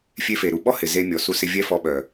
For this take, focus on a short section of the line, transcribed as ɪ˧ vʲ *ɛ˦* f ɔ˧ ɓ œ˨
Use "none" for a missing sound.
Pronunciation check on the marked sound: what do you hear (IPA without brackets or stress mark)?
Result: ɛ˦